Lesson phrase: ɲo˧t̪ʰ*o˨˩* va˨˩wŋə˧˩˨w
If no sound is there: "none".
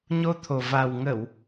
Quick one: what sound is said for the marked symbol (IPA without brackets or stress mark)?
o˨˩